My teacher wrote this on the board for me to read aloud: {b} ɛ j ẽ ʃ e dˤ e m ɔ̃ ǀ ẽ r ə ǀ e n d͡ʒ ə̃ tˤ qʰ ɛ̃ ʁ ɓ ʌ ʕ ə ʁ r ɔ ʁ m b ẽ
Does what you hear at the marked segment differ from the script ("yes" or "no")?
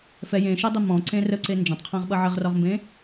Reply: yes